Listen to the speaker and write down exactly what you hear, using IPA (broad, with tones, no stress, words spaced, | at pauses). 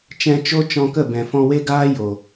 t͡ʃɛ̃˧t͡ʃo˦t͡ʃɔ̃˧kə˦˨ bɛ̃˨fɔ̃˧we˦ɡaː˦ jo˨